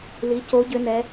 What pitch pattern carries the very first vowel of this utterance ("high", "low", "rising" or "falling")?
rising